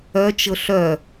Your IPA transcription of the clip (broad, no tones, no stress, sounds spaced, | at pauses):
œ t͡ʃ ɤ ɬ œ